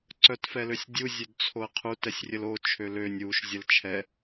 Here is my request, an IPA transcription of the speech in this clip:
ǀ œ t f ɛ l ø sʲ dʲ u zʲ ø d t͡sʰ o ə̯ qʰ u t ɛ sʲ rʲ ə l o t͡ʃʰ ø l ø nʲ u ʃ zʲ ə l t͡ʃʰ ɛ

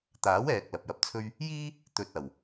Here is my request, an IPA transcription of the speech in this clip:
t̪ aː˨˥ w ɛː˨ k̚ l ɐ˨ p̚ j ɐ˧ p̚ t͡sʰ ɵ˥ ɥ | j iː˥ | t̪ ɵ˧ t̚ ɐ˨˩ w

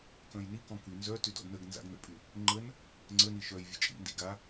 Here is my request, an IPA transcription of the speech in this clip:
k œ̃ j n i k ɔ̃ k y n z œ t y d ɔ̰ d n ə ɡ n z a̰ ɡ n ə̰ pʼ y | ŋ͡ǃ ə n | ŋ͡ǀ ə n i ʃ œ j vʲ ə̰ t͡ʃʼ ḭ n d ḭ ɡ a

